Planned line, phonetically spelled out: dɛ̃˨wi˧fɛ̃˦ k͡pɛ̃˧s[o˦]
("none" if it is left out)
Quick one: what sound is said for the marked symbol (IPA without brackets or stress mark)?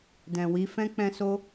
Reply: o˧